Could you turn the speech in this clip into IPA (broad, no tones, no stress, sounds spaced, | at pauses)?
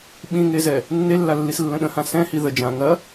ɓ ĩ ŋ e z ɛ | nː e lː a lː i s lː ə̃ ɗ ə̃ h ã s ɛ̃ h i ð ə d͡ʒ ã ŋ ɐ